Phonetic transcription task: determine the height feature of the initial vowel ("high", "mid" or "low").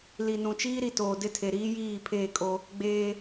high